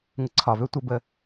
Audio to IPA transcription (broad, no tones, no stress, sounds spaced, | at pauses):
ŋ ə ǀʰ ɒ v ø tʷ ə b ə